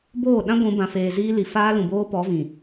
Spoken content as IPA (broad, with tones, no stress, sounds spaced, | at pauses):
b oː˦˨ ɗ ã˦ ɡʷ ũ˨˦ b ã˨ f eː˨ z iː˦ l i˨ f aː˦ l ũ˨ b oː˦ p ɔ˨˦ v ĩ˨